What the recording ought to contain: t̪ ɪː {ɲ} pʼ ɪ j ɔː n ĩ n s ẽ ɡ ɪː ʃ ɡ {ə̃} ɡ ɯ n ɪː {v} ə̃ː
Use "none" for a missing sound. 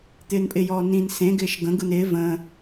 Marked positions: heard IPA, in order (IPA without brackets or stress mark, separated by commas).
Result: n, ə̃, v